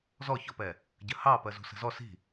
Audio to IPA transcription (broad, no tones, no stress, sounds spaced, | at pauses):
z ɔ ç ɔ p ɛ | ɟ ə h ɑ p ɜ z ṳ s ə̤ z ɔ s i̤